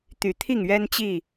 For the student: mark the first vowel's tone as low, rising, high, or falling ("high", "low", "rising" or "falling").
low